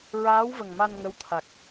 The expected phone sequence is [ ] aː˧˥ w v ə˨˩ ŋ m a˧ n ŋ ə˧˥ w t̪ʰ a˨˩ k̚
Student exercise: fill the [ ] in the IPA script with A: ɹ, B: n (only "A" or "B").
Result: A